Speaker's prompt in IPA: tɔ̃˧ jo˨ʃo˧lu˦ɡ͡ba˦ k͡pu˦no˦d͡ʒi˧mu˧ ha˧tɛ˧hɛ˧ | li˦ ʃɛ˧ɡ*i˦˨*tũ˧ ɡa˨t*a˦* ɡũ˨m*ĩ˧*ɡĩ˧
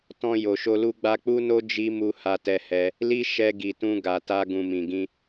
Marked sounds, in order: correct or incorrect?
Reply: incorrect, incorrect, incorrect

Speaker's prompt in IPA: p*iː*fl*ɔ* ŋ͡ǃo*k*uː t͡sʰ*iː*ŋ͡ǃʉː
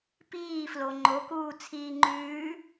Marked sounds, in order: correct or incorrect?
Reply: correct, incorrect, correct, correct

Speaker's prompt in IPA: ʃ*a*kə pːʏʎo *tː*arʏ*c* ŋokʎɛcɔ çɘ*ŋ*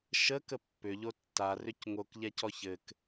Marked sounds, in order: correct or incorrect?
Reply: incorrect, correct, correct, incorrect

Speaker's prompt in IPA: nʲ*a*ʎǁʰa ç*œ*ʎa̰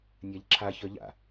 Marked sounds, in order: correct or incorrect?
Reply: correct, correct

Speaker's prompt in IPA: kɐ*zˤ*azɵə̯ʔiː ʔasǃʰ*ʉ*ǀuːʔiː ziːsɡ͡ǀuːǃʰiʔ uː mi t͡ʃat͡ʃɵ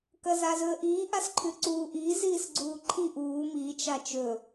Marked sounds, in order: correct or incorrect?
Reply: incorrect, correct

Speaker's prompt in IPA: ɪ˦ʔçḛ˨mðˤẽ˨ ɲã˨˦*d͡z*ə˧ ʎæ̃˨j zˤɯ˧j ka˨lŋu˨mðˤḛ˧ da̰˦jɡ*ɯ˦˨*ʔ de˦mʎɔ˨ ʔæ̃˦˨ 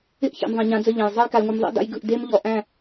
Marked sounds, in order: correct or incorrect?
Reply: correct, correct

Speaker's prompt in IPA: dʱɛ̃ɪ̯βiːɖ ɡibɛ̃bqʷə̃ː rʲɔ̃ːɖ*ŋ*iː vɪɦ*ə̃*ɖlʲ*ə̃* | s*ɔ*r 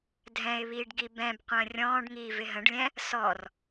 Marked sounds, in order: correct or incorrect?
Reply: correct, correct, incorrect, correct

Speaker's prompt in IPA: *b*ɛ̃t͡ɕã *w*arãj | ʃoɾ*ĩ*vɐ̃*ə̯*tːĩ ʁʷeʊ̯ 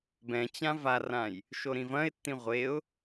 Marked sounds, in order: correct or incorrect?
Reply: correct, incorrect, correct, incorrect

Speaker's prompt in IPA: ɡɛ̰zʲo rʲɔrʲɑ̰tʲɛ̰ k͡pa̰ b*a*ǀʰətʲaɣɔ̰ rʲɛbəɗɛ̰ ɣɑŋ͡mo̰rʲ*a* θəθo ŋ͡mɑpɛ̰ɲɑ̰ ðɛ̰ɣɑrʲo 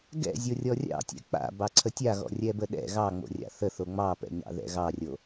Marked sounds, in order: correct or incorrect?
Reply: incorrect, incorrect

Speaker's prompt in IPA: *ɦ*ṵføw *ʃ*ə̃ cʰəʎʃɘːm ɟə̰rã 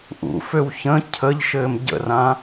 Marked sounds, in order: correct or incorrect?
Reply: incorrect, incorrect

